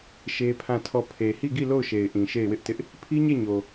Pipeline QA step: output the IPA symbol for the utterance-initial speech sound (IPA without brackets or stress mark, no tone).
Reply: ʃ